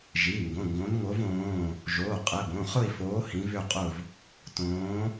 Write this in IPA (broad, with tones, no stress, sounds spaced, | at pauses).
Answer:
ʒ i˩˧˩ ŋ ɡ õ˩˧˩ ŋ ɡ õ˨˦ n ŋ o˨˦ v õː˩˧˩ | ʒ oː˩˧˩ qʼ ɛ˩˧˩ b õ˩˧˩ χ ʊ˦˨ i̯ f oː˨˦ h ĩ˨˦ v ʏ˦˨ qʼ ʊ˦˨ v | t õː˨˦